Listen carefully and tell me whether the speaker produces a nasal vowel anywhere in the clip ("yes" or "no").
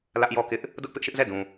yes